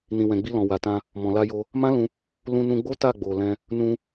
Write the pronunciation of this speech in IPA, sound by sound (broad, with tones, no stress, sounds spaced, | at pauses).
n ĩ˨ w ɛ̃˨ ɡ͡b i˧ l ɔ̃˨ w a˨ t ã˧ | m ɔ̃˨ l a˧ j o˧ | m ã˦ l ũ˧ | l ũ˧ n ũ˧ ɡ͡b o˦ t a˦˨ ɡ͡b o˨ l ɛ̃˧ | n ũ˧